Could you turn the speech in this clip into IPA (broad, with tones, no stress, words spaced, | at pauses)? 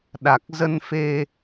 ɗa˨˩k̚zə˧nfe˧